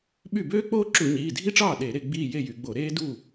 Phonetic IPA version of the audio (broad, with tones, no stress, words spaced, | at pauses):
ɓy˥˩ bøː˥k͡poː˥ ǁu˧˩˧ɲiː˩˧˩dʱi˥˧ʈ͡ʂɑː˥˩ ɗe˧˩˧ ɾe˥˧ɡ͡biː˥˧ je˥˧jy˩˧ɡ͡bo˧˩˧ ɾeː˥du˥˩